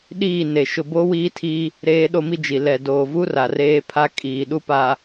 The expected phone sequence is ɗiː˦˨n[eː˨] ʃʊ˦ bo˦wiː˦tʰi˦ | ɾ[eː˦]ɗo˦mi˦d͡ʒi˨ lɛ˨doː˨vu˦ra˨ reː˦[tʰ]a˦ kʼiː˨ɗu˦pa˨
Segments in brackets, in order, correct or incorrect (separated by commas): incorrect, correct, incorrect